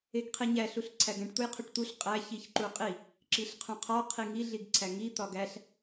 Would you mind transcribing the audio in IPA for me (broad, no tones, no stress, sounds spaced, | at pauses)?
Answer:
e ɡ qʰ i ɲ æ ɬ u ɬ ǀʰ æ ɡ æ̃ ʈ t̪ u j qʰ o ʈ t̪ u ɬ qʼ æ ç i ç ǃ u qʼ i | ǁ i ɬ qʰ ũ qʰ ɒ qʰ i ŋ i ɮ i ɡ ǀʰ æ ŋ i t̪ ɒ ɡ æ ɬ